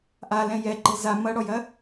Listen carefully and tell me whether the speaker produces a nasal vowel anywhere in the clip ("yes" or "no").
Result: yes